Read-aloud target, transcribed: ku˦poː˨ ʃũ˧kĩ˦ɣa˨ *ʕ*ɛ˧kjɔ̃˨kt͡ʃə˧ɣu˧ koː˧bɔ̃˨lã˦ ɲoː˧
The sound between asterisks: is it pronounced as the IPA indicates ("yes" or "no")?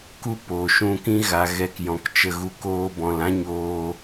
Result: no